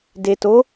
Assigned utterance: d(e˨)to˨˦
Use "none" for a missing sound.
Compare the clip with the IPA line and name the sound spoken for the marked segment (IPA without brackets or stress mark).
e˨